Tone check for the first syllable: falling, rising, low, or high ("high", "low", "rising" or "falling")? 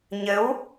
rising